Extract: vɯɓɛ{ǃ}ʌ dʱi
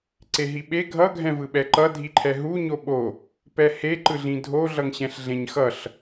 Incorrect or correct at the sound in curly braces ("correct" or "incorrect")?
correct